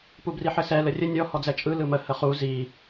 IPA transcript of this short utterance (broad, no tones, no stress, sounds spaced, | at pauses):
p u b r i ħ ɘ s ɛ l ə rʲ ə nʲ ɔ h ɔ d͡z ɛ t͡ʃʼ ɯ l ɯ m ə h ə χ u z i